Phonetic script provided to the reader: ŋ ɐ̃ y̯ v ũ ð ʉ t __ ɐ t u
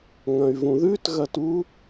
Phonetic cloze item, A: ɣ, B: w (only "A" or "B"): A